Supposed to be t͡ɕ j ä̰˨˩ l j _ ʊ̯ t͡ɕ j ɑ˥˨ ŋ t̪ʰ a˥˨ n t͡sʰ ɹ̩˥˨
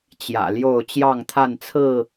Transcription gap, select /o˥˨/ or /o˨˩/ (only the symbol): o˥˨